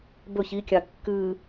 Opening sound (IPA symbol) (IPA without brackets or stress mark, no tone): b